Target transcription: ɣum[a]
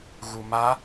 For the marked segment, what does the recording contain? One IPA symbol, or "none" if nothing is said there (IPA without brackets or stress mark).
a